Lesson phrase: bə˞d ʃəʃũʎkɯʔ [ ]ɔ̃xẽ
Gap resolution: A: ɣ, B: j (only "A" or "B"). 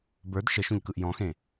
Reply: B